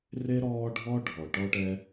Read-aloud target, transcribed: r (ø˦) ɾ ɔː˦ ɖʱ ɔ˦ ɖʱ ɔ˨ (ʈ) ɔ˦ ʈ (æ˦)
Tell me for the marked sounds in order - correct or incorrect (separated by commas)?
incorrect, correct, incorrect